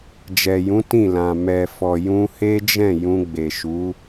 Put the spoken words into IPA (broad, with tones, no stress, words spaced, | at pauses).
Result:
d͡ʒɛ˨jũ˨˦ tĩ˦˨lã˨ mɛ˨fɔ˨ jũ˧he˦d͡ʒɛ̃˦˨ jũ˧ɡ͡be˨ʃu˨˦